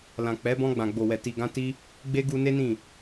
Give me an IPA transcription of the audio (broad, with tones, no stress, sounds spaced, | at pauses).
l ã˨ k͡p ɛ˨˦ b ɔ̃˧ ɡ͡b ã˨ ɡ͡b o˨ w ɛ˨ t i˨ ɡ ã˧ t i˧ | ɡ͡b e˦ ɡ u˧ n e˦ n ĩ˦˨